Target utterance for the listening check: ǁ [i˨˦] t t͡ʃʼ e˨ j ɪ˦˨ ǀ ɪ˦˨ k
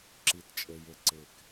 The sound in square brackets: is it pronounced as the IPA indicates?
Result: yes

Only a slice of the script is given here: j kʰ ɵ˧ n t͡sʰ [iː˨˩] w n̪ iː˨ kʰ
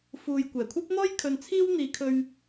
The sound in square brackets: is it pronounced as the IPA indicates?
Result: no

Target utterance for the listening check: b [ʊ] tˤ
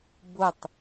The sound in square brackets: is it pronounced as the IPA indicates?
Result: yes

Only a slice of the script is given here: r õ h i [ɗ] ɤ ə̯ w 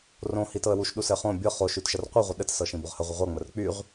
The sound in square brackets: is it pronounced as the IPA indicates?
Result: no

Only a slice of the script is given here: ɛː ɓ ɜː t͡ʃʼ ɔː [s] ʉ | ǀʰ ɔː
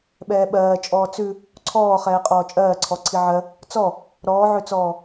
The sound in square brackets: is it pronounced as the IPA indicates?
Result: no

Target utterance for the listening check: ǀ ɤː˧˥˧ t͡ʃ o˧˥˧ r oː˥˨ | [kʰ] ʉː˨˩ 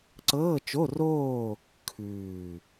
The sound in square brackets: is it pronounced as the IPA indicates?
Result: yes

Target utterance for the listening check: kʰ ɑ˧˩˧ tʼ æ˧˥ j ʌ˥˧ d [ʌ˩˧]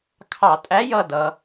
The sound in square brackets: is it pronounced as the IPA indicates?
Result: yes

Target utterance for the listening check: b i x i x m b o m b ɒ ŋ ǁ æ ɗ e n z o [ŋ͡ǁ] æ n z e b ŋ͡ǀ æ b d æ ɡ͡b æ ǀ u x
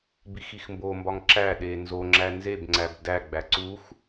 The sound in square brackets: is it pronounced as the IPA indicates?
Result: yes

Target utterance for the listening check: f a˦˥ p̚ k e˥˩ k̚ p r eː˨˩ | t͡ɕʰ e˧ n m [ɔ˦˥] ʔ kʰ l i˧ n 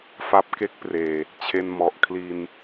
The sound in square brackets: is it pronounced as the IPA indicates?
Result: no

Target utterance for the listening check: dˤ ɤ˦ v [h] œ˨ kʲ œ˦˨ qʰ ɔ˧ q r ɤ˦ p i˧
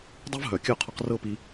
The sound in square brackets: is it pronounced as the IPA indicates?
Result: no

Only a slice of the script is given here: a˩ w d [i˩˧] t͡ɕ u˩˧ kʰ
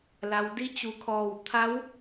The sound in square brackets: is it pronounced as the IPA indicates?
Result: no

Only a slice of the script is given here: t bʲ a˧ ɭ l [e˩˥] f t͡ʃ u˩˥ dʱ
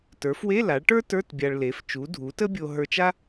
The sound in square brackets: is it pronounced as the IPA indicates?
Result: yes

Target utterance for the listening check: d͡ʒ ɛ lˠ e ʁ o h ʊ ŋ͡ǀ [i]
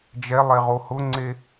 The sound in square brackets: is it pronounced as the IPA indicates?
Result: no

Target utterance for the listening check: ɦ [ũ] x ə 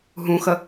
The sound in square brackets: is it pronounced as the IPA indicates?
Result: yes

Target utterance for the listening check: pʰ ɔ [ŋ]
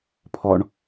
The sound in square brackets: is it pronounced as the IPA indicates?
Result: no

